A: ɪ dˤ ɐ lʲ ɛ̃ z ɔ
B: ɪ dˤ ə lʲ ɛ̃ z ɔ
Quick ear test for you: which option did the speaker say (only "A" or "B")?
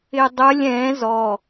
B